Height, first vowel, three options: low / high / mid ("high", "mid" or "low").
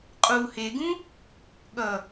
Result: high